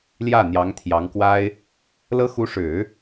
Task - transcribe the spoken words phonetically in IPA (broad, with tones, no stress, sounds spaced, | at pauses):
l j ä˥˩ n̪ j ɑ˧˥ ŋ t̪ʰ j ɑ˧˥ ŋ k w a˥ ɪ̯ | l ɤ˥ x u˧˥ ʂ ɻ̩˨˩˦